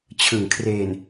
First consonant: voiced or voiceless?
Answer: voiceless